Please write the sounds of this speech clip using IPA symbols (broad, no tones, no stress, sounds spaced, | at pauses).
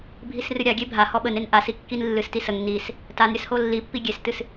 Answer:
bʱ i s r ɨ ɾʲ a ɡʲ e bʱ a h ɔ ɓ ə n e n ʔ a s i kː i n lː ɨ s t i s ə ŋ n i s | t a n ɾʲ ə s h o lː i pː i ɡʲ e s t ɨ s